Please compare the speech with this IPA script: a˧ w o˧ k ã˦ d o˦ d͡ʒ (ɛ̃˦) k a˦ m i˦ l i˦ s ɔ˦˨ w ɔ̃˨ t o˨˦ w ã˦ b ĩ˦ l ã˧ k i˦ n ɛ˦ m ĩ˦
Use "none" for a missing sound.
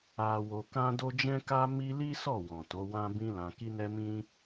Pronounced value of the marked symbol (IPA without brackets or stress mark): ɛ̃˦